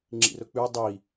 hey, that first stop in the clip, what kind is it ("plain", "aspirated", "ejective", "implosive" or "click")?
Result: click